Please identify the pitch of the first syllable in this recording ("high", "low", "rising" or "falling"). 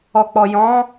low